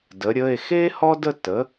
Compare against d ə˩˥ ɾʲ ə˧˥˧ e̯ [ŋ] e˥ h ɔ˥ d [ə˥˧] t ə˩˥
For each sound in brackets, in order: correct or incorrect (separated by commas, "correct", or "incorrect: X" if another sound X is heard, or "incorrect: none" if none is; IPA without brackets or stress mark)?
incorrect: x, correct